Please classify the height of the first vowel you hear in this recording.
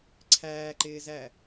low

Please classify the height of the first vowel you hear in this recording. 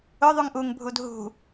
high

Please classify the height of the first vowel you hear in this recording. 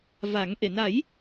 low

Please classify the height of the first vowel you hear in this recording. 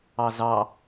low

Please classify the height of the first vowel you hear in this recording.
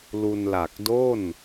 high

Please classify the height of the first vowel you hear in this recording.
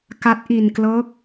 low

